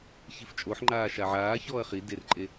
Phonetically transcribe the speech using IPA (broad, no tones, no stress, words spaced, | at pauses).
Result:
çift͡ʃʼoħŋ͡ǃaː ʃaʕaː çɔːɐ̯χi derǃʼe